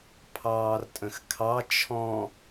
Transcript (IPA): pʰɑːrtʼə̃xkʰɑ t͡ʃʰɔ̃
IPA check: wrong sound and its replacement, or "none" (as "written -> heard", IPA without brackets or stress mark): none